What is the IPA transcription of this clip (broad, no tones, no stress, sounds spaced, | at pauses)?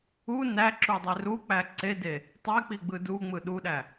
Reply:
u n æ ǁ u dˤ e r u k͡p æ ǀ e d e | tˤ e k͡p i ɡ͡b ɯ d u ŋ͡m ɯ ɗ u ɗ æ